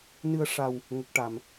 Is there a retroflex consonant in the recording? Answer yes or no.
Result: yes